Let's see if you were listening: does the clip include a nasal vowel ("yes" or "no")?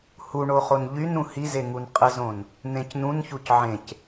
yes